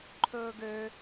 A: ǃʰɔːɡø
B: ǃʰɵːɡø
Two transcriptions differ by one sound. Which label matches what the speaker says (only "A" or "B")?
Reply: B